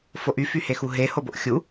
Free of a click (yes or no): yes